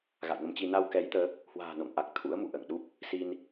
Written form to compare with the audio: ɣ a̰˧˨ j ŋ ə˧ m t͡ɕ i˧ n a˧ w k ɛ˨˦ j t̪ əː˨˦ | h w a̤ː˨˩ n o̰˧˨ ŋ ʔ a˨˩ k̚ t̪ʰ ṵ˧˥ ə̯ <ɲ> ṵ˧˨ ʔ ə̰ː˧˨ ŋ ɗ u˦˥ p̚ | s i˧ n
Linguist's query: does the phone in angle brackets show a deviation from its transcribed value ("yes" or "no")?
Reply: yes